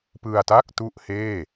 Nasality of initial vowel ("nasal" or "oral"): oral